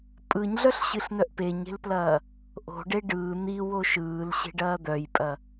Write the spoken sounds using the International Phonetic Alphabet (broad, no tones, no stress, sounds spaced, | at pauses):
pʼ ɯ ɲ ɮ œ ɬ ɕ ɨ ɬ n œ ʔ p e ɲ e̤ l p l ɐː | ʔ o̤ ɖ e ɖ ɯː n̪ i w o ʃ ɯː l ɕ e̤ ɖ ɐː d̪ œ j pʼ ɐ